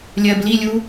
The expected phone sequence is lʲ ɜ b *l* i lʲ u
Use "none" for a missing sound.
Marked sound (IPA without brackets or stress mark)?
l